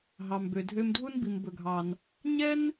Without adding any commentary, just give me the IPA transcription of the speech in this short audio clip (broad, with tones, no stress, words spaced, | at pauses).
ɦɑ˩mbø˩dʱø˧mdʱu˥n bi˩mbɵ˩ɡʱɑ˩n | ɲɛ˥n